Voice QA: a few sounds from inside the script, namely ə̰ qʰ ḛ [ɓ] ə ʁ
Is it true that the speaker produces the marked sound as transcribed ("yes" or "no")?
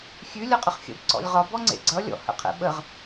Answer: yes